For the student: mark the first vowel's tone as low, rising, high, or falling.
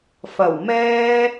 low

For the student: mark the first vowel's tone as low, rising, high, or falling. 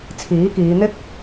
rising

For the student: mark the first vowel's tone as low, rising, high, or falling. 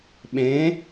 rising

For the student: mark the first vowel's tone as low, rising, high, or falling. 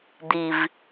low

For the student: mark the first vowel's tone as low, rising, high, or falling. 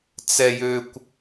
high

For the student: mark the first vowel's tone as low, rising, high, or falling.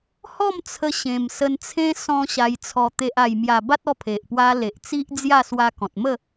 falling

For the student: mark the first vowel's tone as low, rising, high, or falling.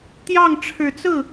falling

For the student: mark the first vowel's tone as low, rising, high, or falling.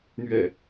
low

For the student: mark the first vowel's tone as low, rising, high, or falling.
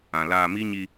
low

